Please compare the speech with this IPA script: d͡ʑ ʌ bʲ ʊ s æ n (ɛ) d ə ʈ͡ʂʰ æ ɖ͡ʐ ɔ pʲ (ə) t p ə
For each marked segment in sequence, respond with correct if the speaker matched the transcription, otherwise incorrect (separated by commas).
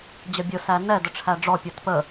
correct, incorrect